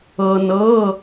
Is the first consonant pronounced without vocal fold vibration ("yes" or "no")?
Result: no